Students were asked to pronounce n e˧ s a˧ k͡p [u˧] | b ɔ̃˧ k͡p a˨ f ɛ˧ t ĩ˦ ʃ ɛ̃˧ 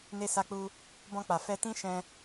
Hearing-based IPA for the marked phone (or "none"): u˧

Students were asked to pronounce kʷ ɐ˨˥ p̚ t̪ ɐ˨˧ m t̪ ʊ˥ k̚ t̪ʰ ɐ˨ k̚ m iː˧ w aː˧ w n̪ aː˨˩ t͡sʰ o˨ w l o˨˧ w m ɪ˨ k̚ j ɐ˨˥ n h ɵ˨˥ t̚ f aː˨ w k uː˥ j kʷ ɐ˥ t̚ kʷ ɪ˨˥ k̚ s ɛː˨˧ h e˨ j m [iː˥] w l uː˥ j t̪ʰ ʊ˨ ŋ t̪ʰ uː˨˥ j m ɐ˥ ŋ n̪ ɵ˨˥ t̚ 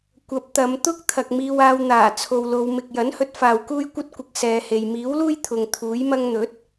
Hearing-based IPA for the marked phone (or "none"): iː˨˥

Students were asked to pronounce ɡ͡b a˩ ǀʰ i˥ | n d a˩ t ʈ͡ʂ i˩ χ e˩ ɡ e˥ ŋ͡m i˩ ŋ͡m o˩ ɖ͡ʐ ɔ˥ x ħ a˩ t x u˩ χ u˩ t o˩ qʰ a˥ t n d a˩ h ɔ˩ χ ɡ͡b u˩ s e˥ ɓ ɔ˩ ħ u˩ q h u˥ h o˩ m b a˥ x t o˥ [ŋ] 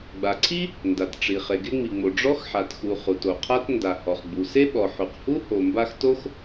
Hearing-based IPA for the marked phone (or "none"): x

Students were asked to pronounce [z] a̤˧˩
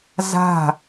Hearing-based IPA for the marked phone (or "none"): z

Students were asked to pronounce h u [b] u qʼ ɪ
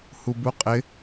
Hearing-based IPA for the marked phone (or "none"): b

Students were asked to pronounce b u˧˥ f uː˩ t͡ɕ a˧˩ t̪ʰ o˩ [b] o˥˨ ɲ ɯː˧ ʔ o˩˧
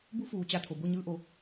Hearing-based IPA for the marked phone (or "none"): b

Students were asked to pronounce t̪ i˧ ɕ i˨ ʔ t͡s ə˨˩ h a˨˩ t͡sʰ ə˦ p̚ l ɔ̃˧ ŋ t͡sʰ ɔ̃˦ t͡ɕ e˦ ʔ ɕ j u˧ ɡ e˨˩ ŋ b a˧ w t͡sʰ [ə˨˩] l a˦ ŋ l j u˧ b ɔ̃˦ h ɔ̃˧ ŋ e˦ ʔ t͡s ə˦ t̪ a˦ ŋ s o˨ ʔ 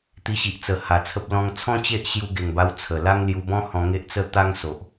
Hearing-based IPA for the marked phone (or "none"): ə˨˩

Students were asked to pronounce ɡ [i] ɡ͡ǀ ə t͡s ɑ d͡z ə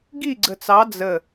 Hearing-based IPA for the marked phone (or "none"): i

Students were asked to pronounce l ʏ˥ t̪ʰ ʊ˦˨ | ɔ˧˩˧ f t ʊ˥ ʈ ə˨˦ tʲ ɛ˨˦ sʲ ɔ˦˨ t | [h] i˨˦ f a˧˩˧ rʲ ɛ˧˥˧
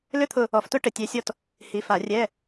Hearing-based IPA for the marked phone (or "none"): h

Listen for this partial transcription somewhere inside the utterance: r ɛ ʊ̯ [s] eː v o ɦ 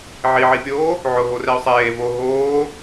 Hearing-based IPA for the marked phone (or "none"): sˤ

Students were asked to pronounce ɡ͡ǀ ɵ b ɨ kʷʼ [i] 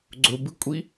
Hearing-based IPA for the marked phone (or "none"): i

